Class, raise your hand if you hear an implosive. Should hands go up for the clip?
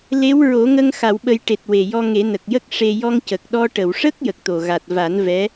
yes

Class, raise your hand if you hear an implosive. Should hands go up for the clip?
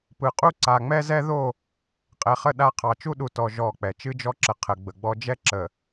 yes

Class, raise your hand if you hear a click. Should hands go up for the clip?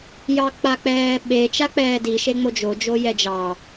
no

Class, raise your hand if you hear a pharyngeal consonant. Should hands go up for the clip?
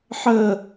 yes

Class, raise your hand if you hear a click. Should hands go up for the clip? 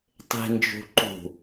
yes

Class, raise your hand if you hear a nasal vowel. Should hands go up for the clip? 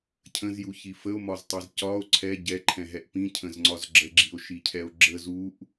yes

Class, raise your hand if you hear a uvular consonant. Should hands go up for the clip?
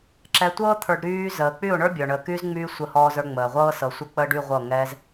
yes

